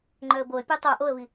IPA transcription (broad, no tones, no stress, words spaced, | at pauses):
ŋ͡ǃœə̯boə̯pʲo tˤo ʔoə̯vi